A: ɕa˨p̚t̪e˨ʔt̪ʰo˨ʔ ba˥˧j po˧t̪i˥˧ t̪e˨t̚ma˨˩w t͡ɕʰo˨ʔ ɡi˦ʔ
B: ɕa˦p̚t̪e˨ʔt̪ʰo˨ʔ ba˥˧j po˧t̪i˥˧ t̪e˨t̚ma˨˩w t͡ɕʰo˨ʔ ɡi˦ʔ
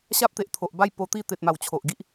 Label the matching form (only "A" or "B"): B